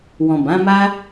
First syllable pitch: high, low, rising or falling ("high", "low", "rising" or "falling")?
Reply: low